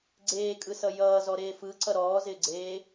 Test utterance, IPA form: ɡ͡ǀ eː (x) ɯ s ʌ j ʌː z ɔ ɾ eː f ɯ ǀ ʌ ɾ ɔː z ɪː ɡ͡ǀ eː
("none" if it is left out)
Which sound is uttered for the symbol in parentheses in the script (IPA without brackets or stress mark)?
kʼ